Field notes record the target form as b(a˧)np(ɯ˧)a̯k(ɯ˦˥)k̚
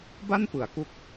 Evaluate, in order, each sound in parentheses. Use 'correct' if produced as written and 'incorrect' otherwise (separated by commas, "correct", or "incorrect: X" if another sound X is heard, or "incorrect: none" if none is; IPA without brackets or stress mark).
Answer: incorrect: a˥˩, incorrect: ɯ˩˦, incorrect: u˦˥